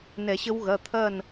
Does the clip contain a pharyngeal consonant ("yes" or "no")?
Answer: no